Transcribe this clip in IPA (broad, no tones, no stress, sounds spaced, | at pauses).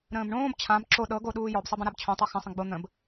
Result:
ɾ ə̃ː b ɳ õː b t͡ɕʰ ã b ǁ o ɗ ɤ ɡ o ɗ uː j ɔ b sˤ ɤ b ə̃ ɾ a b t͡ɕʰ õ tˤ ɤ x ə̃ sˤ ə̃ ɡ͡b o n̪ ə̃ b